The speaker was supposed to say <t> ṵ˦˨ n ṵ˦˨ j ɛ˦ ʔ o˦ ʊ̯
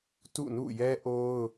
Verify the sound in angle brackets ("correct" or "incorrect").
correct